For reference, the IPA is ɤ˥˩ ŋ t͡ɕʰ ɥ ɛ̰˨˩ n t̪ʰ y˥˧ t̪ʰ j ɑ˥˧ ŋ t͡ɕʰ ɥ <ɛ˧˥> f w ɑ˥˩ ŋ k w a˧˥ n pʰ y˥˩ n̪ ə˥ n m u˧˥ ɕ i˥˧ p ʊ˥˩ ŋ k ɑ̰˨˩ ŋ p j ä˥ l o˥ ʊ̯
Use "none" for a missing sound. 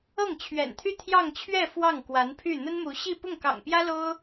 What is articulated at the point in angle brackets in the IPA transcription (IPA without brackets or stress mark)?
ɛ˥˧